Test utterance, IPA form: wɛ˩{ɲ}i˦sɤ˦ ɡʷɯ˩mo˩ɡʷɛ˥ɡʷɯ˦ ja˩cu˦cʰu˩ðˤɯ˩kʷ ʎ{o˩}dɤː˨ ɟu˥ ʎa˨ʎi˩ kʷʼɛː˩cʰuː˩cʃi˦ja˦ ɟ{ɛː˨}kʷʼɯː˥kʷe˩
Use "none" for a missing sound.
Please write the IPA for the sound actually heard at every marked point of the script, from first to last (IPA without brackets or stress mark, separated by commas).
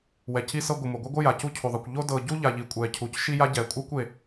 c, o˥, ɛː˩